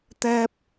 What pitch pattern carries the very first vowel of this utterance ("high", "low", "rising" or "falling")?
high